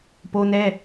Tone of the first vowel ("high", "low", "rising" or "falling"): high